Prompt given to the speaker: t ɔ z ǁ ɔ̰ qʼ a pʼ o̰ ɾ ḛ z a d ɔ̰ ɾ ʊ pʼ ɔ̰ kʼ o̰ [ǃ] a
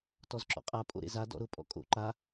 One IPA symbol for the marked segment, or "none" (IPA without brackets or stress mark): ǃ